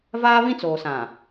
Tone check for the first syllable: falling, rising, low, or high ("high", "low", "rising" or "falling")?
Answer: high